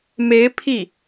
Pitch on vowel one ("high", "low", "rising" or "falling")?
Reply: rising